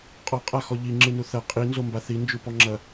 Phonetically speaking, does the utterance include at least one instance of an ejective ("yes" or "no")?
yes